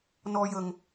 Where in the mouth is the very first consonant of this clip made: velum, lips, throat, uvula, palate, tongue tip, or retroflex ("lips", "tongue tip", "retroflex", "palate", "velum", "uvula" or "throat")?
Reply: tongue tip